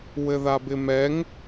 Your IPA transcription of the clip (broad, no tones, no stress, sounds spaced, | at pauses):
w ɘ ð a b ɪ m ɛ ŋ